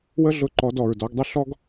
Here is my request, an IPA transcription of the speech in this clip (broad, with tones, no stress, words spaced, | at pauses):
wə˦ɮʊ˧ ǃɔ˨˦dɔ˨ɹdɔ˨˦ɡdˤʊ˦ ɬɔ˦ɡ